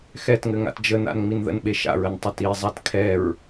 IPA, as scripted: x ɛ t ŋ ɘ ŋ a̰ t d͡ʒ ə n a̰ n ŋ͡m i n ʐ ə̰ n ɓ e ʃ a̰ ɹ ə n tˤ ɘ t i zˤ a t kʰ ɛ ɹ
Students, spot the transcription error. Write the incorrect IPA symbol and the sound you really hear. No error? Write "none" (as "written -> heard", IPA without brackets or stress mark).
ʐ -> ð